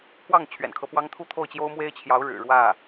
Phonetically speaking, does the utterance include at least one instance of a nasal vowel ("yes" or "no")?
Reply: no